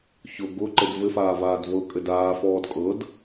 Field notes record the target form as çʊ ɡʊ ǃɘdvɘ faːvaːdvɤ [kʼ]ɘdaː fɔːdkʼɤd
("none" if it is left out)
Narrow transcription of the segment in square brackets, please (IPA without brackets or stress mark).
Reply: kʼ